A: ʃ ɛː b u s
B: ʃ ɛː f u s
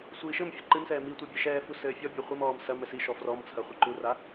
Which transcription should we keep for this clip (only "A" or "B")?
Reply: B